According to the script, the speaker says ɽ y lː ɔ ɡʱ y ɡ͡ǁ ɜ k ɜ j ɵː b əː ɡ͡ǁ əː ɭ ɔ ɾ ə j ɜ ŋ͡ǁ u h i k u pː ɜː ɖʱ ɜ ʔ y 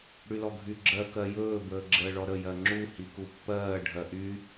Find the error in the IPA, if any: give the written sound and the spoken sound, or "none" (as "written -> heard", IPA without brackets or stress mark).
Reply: lː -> l